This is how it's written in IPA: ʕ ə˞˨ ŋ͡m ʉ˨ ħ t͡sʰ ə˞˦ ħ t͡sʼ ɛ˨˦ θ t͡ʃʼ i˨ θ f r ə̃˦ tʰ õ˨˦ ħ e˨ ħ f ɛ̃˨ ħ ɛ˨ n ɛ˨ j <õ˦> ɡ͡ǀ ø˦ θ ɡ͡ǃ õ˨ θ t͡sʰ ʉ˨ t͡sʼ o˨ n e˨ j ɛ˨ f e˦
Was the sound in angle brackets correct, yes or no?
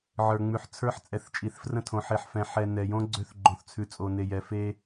yes